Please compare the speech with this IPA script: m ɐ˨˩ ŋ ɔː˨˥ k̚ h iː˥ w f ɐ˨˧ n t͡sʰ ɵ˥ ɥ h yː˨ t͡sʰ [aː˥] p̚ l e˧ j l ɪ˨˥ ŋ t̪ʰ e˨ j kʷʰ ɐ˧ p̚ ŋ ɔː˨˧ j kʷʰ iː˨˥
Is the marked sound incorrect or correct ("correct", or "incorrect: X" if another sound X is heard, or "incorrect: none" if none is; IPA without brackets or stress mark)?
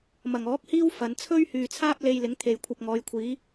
correct